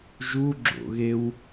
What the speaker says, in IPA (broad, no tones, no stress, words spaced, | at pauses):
ʒuɡ͡ǁo̰ɣew